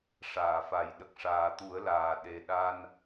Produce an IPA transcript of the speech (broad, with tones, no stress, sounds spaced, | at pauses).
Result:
ʂ aː˨˩˨ f a˨˩˦ j ɗ ə˨˩ k̚ ʂ aː˨˩ t̪ u˨˩˦ ə̯ l aː˨˩ ɗ e˨˩ ɗ a˧ n